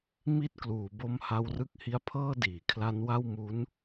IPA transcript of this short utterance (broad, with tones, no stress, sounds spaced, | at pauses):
m i˥˩ t̚ k l uː˩˦ b o˧ m h a˧ w r ɯ˦˥ k̚ h i˧ a̯ pʰ ɤː˥˩ d iː˩˦ kʰ l a˦˥ n w a˥˩ w m u˦˥ n